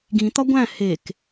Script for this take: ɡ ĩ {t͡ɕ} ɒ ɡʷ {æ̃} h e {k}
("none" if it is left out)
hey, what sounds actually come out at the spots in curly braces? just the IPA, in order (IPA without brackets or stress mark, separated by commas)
t̪, æ̃, k